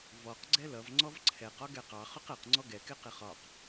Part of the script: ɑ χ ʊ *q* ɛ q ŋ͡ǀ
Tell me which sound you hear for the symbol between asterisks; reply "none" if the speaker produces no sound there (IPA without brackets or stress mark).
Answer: q